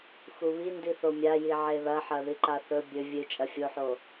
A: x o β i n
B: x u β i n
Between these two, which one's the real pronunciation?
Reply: B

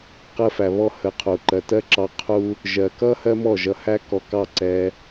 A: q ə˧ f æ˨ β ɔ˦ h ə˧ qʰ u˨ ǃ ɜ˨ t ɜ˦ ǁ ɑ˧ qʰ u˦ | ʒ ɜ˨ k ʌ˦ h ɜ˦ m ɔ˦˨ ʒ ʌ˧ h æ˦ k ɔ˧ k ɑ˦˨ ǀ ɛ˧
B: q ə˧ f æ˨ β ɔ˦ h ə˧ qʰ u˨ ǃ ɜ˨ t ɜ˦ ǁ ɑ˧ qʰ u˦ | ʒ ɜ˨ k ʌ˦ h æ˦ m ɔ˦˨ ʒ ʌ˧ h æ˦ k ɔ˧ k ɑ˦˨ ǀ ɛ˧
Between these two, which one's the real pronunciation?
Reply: A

